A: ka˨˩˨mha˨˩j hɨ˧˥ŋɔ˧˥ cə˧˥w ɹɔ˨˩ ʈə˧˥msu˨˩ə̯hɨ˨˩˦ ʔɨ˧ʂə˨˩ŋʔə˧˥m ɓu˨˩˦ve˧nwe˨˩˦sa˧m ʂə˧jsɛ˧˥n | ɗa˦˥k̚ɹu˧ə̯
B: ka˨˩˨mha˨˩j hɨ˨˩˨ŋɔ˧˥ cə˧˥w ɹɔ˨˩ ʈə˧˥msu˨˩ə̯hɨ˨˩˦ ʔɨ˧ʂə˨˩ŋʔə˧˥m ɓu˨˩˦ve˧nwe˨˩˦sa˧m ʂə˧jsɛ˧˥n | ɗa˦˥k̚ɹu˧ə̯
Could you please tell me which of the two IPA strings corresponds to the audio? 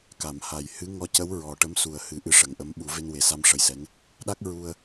A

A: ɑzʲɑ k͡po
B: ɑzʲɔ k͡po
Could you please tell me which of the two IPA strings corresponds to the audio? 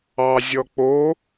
B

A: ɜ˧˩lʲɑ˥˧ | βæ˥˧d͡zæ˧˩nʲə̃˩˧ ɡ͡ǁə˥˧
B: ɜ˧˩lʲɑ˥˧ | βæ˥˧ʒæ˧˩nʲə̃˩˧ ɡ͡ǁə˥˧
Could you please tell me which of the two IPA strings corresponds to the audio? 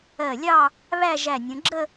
B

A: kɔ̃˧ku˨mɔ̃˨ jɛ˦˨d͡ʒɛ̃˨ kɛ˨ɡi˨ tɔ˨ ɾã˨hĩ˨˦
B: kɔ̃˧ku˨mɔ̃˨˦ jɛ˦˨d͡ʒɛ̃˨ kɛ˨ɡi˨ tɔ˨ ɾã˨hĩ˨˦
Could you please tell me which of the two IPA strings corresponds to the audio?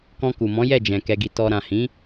B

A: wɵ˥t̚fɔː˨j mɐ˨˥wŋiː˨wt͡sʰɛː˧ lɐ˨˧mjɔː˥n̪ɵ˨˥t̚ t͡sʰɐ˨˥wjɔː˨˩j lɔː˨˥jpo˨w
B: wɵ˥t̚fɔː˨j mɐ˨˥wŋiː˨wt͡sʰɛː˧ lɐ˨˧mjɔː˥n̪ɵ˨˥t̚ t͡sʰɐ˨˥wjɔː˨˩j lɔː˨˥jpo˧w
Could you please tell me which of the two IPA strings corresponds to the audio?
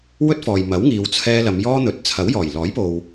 A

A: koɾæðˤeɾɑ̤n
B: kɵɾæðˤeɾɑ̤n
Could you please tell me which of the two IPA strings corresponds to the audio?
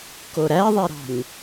A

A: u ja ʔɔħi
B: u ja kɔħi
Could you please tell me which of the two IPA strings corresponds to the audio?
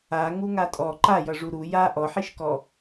A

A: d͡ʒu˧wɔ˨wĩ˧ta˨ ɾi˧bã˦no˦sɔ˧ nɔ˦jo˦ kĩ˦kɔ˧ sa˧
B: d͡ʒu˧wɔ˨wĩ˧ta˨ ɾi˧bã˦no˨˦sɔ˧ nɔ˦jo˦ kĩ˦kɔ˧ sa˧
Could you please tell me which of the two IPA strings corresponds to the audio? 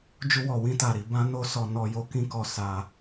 A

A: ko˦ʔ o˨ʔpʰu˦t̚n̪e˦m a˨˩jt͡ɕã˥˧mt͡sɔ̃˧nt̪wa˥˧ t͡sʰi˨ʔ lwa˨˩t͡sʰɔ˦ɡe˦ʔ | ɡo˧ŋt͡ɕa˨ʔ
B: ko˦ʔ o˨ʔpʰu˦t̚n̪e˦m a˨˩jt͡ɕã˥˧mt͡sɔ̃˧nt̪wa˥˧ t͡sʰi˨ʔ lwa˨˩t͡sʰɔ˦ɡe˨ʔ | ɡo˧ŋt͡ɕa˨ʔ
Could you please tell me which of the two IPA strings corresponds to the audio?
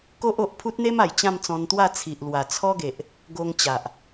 B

